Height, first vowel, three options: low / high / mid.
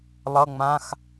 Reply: mid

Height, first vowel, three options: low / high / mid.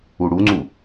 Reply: high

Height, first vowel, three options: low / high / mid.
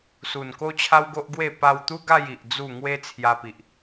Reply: high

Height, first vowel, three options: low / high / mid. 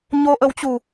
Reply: mid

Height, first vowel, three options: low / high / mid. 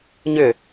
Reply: high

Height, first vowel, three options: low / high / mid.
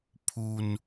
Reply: high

